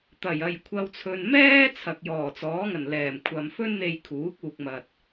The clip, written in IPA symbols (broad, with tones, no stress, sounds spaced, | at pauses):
t̪ ɐ˨˩ j ɐ˨˩ j kʷʰ ɐ˨ w t͡sʰ ɵ˨ n m ɛː˥ t͡sʰ ɐ˨ k̚ j ɔː˨˩ t͡s ɔː˨˥ ŋ ɐ˨˩ n l ɛː˨˩ m kʷʰ ɐ˨ m f ɵ˥ n n̪ e˧ j kʰ uː˨˥ k̚ uː˨ k̚ m ɐ˨ t̚